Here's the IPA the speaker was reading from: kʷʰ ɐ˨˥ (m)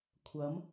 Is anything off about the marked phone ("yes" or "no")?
no